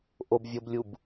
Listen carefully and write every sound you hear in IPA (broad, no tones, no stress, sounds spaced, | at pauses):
ʔ o b vʲ o b lʲ u b